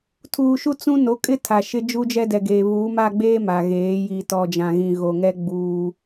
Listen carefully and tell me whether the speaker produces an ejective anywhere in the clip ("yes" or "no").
yes